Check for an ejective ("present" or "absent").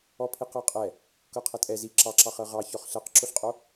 present